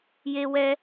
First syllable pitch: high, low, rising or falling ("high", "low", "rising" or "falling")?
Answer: high